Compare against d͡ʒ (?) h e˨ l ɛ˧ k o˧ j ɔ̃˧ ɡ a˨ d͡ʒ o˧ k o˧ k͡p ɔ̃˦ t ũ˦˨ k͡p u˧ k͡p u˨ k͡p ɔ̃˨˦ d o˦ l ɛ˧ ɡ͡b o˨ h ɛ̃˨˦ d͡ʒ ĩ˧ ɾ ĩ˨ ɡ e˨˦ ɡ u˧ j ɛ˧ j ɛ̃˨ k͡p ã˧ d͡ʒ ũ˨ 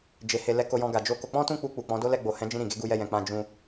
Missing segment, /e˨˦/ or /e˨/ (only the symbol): e˨